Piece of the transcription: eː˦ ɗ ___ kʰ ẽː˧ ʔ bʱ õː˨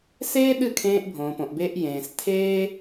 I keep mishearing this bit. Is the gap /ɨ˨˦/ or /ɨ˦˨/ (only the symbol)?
ɨ˦˨